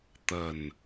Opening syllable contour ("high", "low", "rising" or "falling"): low